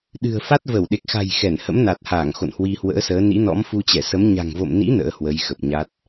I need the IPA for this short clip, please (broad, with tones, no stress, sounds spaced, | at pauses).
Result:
ɗ ɨ̤˨˩ ə̯ f a˦˥ t̚ v ə˧˩ w ɗ e˨˩ k̚ x a̤˨˩ j x ɛ˧˩ n h ə̰˧˥ m n a˨˩ t̚ h aː˧˩ ŋ x o̰˧˨ n h w i˧ h w ə̰ː˧˥ s əː˨˦ n ḭ˧˥ n ɔ̰˧˥ m f u˧ t͡ɕ ɛ˧˩ s ə˨˦ m ɲ a̤˨˩ ŋ v o̰˧˨ m n ḭ˧˥ n ə̰ː˧˥ h w ə˨˦ j x ə˨˩ p̚ ɲ a˦˥ t̚